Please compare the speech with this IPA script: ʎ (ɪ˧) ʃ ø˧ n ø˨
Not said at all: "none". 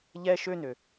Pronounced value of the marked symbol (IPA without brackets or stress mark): ɛ˧